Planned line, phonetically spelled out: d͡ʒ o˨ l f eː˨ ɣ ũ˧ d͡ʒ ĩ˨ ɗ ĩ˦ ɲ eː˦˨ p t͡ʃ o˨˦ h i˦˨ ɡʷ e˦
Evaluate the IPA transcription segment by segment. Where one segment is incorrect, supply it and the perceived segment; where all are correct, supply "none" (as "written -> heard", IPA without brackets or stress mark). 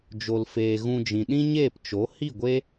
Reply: none